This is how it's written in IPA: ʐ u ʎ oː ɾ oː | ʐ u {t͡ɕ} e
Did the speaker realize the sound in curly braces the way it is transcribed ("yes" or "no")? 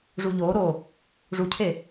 no